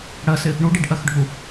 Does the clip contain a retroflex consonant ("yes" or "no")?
yes